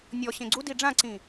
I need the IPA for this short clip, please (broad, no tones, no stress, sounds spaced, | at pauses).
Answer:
nʲ ɔ ɕ ẽ ɡ͡ǀ u d i ɖ͡ʐ ã ǀ ĩ